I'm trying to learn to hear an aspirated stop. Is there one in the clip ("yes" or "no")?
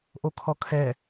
yes